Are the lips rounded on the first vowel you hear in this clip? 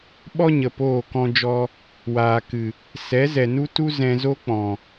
yes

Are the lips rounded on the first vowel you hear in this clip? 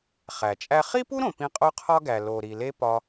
no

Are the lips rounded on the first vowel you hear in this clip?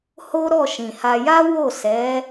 yes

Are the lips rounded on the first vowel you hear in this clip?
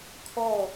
yes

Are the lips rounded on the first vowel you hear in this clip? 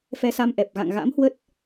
no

